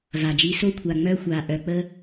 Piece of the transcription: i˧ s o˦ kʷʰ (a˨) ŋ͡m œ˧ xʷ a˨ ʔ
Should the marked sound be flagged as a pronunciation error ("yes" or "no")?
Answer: yes